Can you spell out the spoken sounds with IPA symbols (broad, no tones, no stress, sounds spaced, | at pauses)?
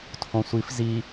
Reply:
tʰ õ sʷ i f z i